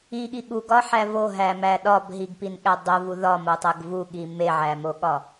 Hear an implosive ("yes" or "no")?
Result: yes